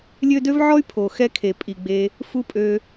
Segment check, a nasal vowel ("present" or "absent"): absent